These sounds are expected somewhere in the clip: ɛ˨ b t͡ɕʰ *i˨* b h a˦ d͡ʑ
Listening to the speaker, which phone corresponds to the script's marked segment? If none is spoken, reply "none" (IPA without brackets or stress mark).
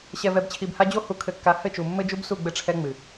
i˨